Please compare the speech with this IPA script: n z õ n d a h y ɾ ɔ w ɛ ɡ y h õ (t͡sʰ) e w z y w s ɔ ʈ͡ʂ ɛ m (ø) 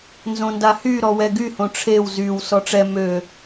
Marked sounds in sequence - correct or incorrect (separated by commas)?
incorrect, correct